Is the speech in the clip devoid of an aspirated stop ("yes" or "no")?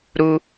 yes